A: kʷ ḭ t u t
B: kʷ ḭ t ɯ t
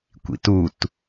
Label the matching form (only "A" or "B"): A